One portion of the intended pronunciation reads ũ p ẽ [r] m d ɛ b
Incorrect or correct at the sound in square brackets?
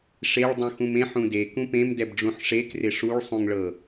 incorrect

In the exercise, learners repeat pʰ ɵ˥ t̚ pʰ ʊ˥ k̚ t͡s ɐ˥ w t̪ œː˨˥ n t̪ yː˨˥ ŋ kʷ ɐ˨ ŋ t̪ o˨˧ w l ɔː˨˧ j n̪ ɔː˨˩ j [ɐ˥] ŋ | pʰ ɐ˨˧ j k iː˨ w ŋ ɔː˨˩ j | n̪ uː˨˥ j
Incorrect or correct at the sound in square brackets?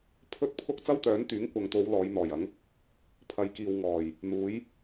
incorrect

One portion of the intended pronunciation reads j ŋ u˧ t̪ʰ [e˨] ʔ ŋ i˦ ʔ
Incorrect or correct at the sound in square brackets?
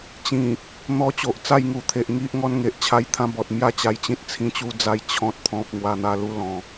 correct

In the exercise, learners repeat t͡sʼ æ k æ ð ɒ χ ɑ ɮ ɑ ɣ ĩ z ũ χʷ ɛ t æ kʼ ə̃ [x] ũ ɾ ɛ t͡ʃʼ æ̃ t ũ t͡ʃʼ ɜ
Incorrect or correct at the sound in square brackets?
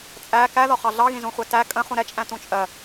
incorrect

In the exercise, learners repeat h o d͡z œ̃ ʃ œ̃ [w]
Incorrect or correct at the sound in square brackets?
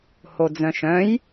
incorrect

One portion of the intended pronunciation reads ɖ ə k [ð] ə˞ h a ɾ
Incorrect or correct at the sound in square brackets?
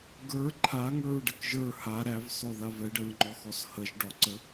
incorrect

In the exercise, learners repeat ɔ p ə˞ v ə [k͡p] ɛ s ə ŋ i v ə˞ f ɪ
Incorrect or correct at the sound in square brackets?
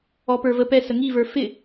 incorrect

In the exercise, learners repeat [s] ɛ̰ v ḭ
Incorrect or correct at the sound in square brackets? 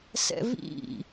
correct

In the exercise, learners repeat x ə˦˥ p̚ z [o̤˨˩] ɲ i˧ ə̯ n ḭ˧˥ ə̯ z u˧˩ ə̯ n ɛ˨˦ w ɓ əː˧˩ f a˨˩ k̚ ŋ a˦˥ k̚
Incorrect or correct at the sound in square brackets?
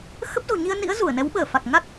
correct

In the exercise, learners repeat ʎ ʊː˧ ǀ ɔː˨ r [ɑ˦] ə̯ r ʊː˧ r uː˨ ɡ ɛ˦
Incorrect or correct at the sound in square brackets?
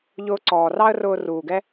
correct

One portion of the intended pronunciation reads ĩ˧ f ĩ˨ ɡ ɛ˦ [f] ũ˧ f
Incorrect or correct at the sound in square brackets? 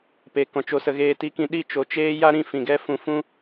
correct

